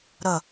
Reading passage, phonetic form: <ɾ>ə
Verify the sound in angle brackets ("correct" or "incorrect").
correct